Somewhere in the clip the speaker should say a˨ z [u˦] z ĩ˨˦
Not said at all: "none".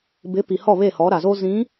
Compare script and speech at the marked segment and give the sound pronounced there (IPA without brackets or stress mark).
o˦